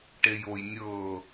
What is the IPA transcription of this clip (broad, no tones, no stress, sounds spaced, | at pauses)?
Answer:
ʈ e j o j nʲ ɤː